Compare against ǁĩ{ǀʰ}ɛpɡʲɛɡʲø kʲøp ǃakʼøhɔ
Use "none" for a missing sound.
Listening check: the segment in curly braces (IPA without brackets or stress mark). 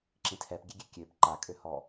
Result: tʰ